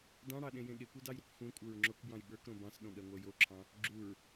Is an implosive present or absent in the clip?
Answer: present